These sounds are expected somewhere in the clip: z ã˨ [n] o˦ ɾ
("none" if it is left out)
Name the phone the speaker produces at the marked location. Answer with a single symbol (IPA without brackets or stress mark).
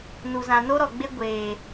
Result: n